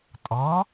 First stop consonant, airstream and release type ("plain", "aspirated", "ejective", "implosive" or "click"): ejective